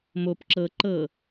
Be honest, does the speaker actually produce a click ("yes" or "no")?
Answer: yes